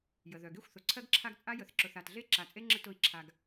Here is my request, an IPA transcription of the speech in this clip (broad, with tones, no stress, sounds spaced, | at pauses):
j ə˨ ð œ˨ ɡ e˦ xʷ θ ʊ˨ ǀʰ ɜ˦ ɡ ǁʰ a˦ ɡ t͡sʼ a˦ j ə˨ θ ǁ ʊ˨ θ a˨ t ɮ e˦ ǁ a˨ t͡sʼ e˦ ŋ͡ǁ ə˦ t ʊ˦˨ i̯ ǁʰ a˨ ɡ